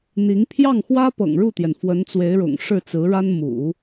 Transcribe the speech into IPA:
n̪i˧˥ŋ pʰjɑ˥˩ŋxwä˥ pɤ̰˨˩ŋɻu˥˩t̪jɛ˩n fwə˧˥nt͡swe˧˥ɪ̯ɻʊ̰˨˩ŋ ʂɻ̩˥˩t͡sɹ̩˧˥ɻa˥n mṵ˨˩˦

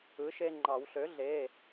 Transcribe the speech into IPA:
ɯ˩˥ʃe˦ŋ͡ǃɑ˨˩˦w ɬø˩˥ ɮe˩˧˩

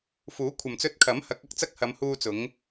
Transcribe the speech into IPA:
fuː˨˥kʷʰɐ˨mt͡sɵ˧t̚kʰɐ˨˥m hɐ˨˥k̚ɐ˧k̚t͡sɐ˥k̚ hɐ˨˧mhuː˧t͡sʊ˨˧ŋ

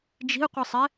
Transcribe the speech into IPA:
d͡ʒi̤ʊ̯qʷɨsˤɛ

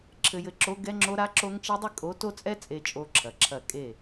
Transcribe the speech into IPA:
ǁʰɘ˨jɘ˨ǁo˨˦ ɡɛ˦ŋ͡ǁo˦ ɾa˦ǁo˦ŋt͡ʃi˦dˤi˦ kʼo˨˦ to˦t͡sʼɛ˦ t͡sʼe˦t͡ʃʼo˦ǁʰɐ˨ǁʰɐ˦˨ kʼe˦˨

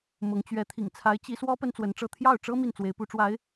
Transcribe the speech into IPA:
mʊ˧˥ŋt͡ɕɥɛ˧˥ t̪ʰḭ˨˩ŋt͡sʰa˧˥ɪ̯ t͡ɕi˧˥swɔ˥ pə˥nt͡swə˧˥nʈ͡ʂɤ˥˧ t̪ʰjɑ˥˩ʊ̯ʈ͡ʂɤ˥ mi˥˩nt͡swe˧˥ɪ̯pu˧˥ʈ͡ʂwa˧˥ɪ̯

